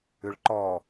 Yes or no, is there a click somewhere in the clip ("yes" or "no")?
yes